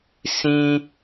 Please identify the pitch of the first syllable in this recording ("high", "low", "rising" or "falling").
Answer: high